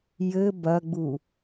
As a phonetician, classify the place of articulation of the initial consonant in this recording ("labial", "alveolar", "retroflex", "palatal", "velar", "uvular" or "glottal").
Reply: palatal